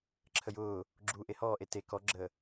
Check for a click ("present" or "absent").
present